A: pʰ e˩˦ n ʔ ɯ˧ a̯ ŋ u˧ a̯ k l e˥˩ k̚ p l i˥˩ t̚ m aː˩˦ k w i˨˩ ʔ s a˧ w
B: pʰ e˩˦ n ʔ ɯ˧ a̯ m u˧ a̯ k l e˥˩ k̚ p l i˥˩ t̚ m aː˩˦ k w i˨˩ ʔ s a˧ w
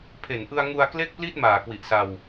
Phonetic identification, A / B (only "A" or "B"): A